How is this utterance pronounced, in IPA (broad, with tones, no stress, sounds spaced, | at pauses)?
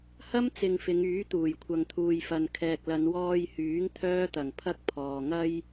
h ɐ˥ m t͡s ɪ˨ ŋ f ɪ˨˧ ŋ yː˨˥ t̪ uː˨˩ j kʷʰ ɐ˨ ŋ t̪ʰ uː˨ j f ɐ˨ n kʰ ɛː˨ k̚ l ɐ˨˧ n w ɔː˧ j h yː˨˥ ŋ t̪ʰ œː˥ t̪ ɐ˨˩ ŋ pʰ ɐ˥ k̚ pʰ ɔː˨ ŋ ɐ˥ j